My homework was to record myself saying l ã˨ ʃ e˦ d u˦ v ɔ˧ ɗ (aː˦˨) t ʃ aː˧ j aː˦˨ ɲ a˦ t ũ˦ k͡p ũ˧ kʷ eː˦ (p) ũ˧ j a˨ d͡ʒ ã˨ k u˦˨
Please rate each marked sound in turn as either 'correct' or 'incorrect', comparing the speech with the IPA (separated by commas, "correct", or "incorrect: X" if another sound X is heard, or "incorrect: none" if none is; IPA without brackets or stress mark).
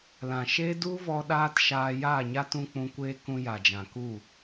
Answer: incorrect: aː˦, incorrect: k